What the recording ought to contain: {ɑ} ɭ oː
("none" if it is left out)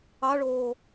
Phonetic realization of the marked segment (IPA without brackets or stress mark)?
ɑ